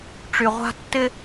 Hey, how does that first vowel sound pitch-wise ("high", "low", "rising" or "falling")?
low